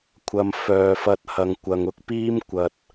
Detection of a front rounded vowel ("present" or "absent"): present